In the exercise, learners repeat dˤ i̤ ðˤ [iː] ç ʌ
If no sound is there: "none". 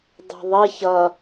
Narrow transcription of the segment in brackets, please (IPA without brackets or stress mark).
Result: i